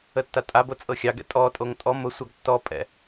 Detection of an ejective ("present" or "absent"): present